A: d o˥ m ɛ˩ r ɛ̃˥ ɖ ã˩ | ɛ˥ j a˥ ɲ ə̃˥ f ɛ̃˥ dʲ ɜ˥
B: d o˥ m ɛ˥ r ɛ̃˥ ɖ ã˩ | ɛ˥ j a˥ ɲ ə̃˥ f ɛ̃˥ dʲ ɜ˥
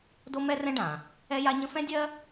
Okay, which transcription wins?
B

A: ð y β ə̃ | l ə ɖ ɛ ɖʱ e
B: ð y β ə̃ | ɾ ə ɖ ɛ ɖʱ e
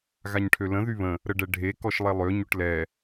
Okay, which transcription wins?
B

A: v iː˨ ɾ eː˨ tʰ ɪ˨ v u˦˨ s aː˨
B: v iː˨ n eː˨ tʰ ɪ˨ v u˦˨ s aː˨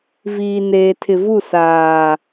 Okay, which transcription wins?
B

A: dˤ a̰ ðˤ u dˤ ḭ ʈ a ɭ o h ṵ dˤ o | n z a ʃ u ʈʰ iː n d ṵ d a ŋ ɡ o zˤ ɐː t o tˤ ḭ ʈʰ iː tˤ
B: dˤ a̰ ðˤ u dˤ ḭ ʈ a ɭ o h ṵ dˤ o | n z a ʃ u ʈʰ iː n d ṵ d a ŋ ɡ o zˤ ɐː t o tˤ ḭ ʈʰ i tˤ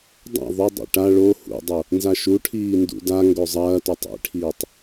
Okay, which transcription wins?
A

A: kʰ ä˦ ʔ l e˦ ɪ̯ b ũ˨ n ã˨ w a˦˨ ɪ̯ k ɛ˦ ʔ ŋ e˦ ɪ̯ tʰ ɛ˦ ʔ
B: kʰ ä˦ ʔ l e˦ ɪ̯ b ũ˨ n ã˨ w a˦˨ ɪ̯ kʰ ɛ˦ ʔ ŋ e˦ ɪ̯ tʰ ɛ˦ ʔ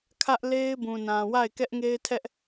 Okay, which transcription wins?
A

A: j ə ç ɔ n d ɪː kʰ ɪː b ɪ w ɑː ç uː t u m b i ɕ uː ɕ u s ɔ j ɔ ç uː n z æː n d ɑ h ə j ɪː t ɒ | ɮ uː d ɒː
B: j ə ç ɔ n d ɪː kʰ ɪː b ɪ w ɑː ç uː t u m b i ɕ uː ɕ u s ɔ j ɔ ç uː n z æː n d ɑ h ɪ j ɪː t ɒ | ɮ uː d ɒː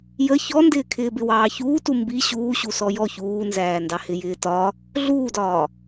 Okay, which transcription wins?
B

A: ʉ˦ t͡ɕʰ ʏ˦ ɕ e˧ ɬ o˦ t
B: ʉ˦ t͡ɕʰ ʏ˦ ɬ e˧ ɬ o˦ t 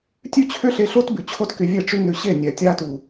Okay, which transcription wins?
B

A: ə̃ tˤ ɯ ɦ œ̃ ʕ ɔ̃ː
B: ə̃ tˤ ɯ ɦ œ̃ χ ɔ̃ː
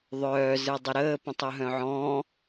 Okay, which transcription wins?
A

